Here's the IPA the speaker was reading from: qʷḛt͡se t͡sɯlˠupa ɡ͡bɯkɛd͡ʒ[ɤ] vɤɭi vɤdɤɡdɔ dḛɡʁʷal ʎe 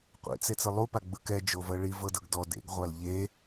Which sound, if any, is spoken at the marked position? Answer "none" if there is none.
o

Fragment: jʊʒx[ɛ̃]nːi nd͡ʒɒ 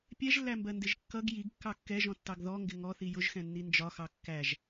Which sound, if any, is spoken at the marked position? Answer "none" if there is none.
ɛ̃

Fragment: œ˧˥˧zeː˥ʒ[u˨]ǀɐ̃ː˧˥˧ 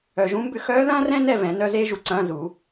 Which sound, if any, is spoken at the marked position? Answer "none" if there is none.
u˨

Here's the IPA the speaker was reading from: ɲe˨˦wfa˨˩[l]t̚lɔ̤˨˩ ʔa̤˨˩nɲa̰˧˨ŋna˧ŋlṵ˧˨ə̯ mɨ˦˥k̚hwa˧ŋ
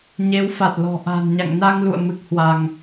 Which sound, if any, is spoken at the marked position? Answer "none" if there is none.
none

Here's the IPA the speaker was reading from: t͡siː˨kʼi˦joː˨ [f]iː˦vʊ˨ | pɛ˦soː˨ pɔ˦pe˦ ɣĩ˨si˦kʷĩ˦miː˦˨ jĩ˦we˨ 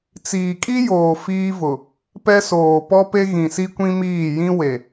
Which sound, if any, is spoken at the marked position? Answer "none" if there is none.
f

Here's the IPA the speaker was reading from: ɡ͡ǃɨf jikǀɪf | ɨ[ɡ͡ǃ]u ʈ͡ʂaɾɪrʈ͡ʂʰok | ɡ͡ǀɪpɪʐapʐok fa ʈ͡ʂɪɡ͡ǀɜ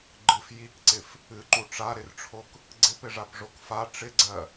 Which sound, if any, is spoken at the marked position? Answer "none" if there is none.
ǃ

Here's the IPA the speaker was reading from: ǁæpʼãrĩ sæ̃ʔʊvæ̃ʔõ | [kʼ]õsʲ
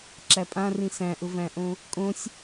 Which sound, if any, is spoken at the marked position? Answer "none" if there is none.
kʼ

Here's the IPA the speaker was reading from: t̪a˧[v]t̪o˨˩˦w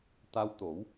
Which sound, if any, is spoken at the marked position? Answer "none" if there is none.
w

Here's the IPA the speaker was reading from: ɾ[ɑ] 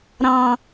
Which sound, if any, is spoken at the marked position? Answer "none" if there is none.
ɑ̃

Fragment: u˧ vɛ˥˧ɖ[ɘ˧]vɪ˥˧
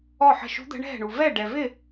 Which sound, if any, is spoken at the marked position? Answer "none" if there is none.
ɛ˧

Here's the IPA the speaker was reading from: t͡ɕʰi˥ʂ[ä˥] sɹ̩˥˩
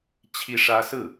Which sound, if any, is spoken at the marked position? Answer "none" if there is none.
ä˥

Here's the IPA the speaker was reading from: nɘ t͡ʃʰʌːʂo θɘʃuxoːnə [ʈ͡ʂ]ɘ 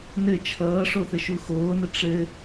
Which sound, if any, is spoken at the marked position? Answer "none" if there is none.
ʈ͡ʂ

